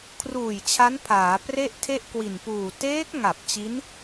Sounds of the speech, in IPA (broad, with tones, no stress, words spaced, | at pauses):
kʰruː˨˩j t͡ɕʰa˦˥npʰaː˩˦ pre˥˩ʔtʰe˥˩ʔkwi˨˩npuː˨˩ teː˦˥k̚ŋa˨˩p̚ t͡ɕi˦˥n